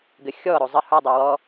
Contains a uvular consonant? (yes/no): no